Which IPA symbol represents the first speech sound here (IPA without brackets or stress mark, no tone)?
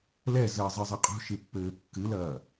l